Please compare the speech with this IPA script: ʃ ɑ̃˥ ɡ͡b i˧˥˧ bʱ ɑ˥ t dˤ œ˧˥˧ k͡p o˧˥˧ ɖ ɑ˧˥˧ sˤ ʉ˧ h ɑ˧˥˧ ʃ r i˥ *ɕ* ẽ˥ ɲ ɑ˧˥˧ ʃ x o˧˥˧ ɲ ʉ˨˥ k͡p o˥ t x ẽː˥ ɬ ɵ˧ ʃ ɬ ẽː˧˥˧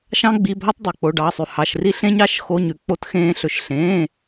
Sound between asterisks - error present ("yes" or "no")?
yes